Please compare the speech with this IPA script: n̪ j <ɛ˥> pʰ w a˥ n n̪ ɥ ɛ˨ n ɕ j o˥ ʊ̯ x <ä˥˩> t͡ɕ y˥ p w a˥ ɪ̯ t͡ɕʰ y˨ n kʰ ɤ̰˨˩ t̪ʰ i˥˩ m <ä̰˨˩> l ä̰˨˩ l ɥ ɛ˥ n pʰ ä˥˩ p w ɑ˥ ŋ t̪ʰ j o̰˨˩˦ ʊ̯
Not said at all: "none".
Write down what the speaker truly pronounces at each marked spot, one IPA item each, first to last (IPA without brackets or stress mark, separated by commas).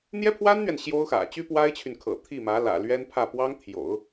ɛ˥, ä̰˨˩, ä˧˥